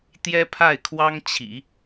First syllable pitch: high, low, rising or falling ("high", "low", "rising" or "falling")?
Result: high